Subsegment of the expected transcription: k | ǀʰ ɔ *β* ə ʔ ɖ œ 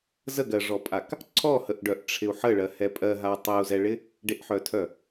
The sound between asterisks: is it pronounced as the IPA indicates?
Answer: no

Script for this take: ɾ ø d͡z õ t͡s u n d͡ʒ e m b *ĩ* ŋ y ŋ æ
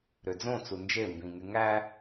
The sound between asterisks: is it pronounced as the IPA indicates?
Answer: yes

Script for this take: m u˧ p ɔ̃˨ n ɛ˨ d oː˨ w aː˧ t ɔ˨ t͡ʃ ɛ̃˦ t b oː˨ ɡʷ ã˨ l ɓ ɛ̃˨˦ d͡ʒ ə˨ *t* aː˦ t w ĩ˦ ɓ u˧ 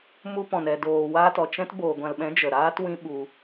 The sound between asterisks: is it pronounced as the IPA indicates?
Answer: no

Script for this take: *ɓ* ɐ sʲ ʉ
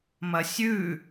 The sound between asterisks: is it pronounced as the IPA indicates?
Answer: no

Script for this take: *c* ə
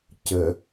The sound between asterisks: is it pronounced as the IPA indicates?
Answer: yes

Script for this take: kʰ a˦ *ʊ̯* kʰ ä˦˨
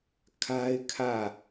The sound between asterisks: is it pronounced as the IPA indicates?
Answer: no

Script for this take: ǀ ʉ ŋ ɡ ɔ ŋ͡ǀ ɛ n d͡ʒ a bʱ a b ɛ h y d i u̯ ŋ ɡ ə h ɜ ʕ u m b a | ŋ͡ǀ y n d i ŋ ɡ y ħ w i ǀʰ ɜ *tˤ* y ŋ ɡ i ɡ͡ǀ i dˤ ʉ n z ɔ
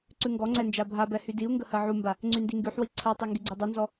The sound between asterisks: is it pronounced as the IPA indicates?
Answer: yes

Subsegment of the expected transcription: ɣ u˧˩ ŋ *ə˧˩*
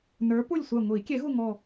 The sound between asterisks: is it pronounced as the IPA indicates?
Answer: no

